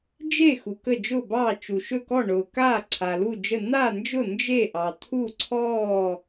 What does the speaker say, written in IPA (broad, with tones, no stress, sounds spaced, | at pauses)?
d͡ʒ e˧˩ x u˩ k ə˧˩ d͡ʒ ʊː˧˩ b ɑː˧˩ t͡ʃ u˩ ʃ ɵ˧˩ k ɔ˧˩ ɳ ʊː˩ k aː˧˩ ǀʰ a˩ l u˧˩ d͡ʒ ə˧˩ n̪ aː˧˩ n d͡ʒ ʊ˧˩ n d͡ʒ e˧˩ ʔ ɑ˩ t̪ʰ u˧˩ ǀʰ ɔː˧˩